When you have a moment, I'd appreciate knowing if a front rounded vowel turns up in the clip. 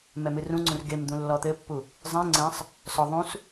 no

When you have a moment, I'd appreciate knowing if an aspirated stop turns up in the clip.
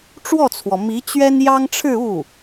yes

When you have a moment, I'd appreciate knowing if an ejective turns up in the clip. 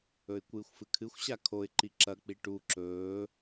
no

